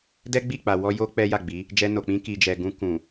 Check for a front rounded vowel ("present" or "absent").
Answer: absent